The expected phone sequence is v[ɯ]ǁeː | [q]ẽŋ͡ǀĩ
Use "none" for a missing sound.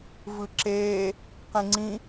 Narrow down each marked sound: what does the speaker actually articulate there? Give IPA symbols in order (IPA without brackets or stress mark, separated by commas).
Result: ɯ, q